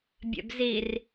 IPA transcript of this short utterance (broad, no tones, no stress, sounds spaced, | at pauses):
bʲ ɛ̰ b z i r